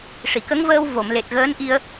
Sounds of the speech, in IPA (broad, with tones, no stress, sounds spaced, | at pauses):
ʂ i˨˩˨ k ə˧˥ ŋ v əː˧ w v o˨˩˨ m l e˨˩ t̚ ɣ əː˧˥ n ʔ i˧ ə̯